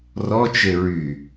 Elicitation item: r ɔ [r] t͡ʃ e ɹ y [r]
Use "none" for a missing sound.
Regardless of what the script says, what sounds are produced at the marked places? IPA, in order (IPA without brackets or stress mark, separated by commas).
none, none